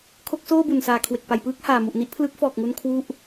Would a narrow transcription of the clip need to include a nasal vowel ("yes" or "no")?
no